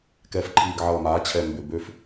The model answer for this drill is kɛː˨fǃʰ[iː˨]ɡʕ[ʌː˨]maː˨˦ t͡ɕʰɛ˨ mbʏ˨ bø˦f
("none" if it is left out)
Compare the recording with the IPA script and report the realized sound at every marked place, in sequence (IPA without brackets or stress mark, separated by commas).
iː˨, ʌː˨